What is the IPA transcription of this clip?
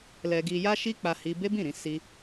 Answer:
lɛ˧ɡi˧ja˦ ʃi˦k͡pa˧hi˧ be˦bĩ˦˨ɾĩ˧ si˦

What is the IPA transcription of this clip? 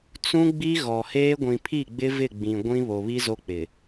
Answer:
t͡sũ˦ɡ͡bi˦ ɣɔ˨heː˦ ɡʷĩ˨pʰi˦˨ɡ͡bɪ˦ vɪ˦˨ɡ͡bĩ˨ ɡʷĩ˦ βo˨βi˦zo˦k͡pɪ˨

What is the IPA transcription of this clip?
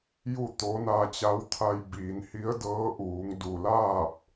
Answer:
ju˥˨t̪o˧˥ na˧t͡ɕa˧˥wt̪ʰa˧jbiː˩˧n hi˧˥ə̯dɤː˧˥ʔuː˩˧ŋ du˩laː˥˨p̚

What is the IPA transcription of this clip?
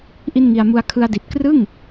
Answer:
ʔi˥˩nŋi˧a̯mu˦˥a̯ kʰɯ˧a̯di˨˩t̚krɯ˥˩ŋ

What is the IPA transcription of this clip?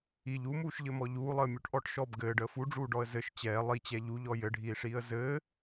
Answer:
iʎ umuːʃʎɘmɔ ʎuːlˠəːmʲuʈʔɔʈ ʃɔb ɡɘːɖəː fuɖ͡ʐuːɖɔə̯ zɘʃ t͡ɕɛː lˠit͡ɕɛ ʎuʎɔ jɘɖʱiːʂiːə̯ zɘː

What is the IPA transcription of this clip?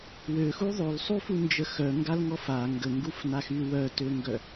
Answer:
wøxu ðˤolsˤufund͡ʒə xœŋɡalŋɔf a ŋɡəŋɡufnaxy wœtøŋɡœ

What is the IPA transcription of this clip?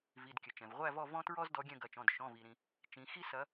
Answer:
vi˩˧˩dkʲɘ˩ t͡ʃɛ̃˩vʁʷæ˦˨vɔ˦˨ vɔ̃˦tɹɔ˦zdɔ˨˦ ɡʲɛ̃˦˨ɡɐ˩˧˩t͡ʃɔ̃˩˧˩d ʃɔ̃˩˧˩vi˩ɾĩ˩ | t͡ʃĩ˨˦ xi˦sɐ˨˦

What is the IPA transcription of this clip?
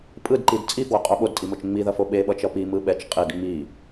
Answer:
pʼɯdǃid t͡sʼifwoqʼo ɓodtʼimot͡ʃ ŋ͡miðʌfo ɓeɓʌt͡ʃʌ pimɯ ɓɛt͡ʃ qʼid ŋ͡mi

